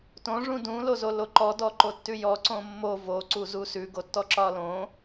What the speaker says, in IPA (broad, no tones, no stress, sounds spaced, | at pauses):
t õ ʐ ũ d ũ l o z o l o ǃ ɔ d ɔ ǃ o tː ʉ j ɔ ǀ õ mː o v o ǀ u z u s ʉ ɡ o tː ɔ ǁ ɒ l õ